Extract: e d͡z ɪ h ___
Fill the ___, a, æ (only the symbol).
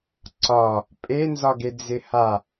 a